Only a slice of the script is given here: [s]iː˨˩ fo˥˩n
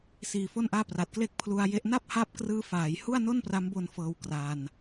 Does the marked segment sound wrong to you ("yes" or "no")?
no